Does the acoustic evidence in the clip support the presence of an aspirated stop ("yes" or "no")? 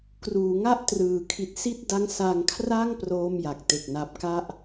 yes